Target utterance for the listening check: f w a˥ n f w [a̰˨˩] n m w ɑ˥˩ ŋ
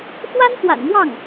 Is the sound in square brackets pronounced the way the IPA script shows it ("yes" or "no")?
yes